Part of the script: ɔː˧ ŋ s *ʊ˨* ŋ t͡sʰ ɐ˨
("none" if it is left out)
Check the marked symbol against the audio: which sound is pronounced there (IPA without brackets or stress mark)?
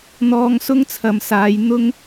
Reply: ʊ˥